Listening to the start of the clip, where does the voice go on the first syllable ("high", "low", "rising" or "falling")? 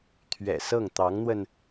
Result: low